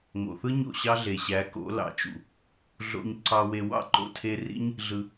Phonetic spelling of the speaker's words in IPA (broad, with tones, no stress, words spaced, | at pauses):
ŋo̰˨θɯ˦ ɲo̰˦˨ɕɑ˦ɮe˨ɕæ˨˦ ko̰˨˦ lɑ̰˨t͡ʃṵ˨ | ɮo̰˧ɲ ǀɑ˧we˧wɑ̰˦ ǃo̰˨tʰe˧ rḭ˦ɲ | ɮɯ˧